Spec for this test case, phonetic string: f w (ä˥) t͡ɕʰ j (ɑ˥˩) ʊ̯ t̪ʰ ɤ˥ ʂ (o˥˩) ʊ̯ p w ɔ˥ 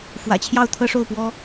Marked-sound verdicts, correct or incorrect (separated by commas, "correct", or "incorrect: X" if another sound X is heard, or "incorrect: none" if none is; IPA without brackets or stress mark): incorrect: ä̰˨˩, correct, correct